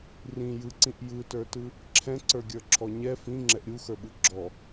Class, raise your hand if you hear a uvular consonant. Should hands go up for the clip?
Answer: no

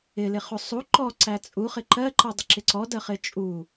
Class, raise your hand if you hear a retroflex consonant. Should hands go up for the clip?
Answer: no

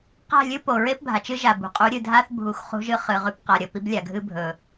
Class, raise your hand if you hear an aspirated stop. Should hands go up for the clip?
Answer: no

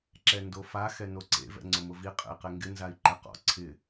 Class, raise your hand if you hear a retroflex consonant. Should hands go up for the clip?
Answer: no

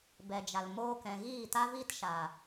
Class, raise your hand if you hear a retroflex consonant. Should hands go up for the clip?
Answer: no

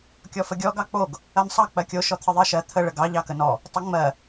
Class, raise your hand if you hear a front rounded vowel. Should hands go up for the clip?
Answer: no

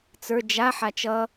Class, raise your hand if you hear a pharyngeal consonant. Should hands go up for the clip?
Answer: yes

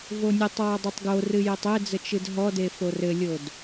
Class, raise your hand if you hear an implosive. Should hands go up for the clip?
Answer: no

